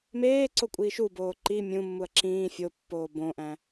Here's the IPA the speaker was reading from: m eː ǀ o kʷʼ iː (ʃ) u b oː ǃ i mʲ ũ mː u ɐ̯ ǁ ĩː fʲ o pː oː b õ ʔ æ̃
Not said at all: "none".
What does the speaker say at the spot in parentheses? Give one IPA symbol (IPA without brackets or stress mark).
ʃ